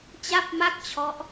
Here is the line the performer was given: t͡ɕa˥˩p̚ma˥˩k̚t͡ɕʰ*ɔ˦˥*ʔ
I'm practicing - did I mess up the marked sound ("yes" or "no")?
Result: no